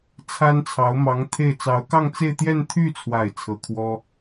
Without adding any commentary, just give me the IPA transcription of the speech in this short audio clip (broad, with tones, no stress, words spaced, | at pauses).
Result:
t͡sʰa˥nt͡sʰɑ˧˥ʊ̯ mɑ˧˥ŋ t̪ʰe˥˩ɪ̯ t͡sɑ˧˥ʊ̯kɑ˥˧ŋt͡se˥˧ɪ̯t̪jɛ˥˧n t̪ʰy˥˩t͡sʰwa˨˩ɪ̯ t͡sʰɤ˧˥kʰwɔ˥